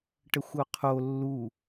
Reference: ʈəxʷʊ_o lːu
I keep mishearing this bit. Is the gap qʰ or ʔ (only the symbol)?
qʰ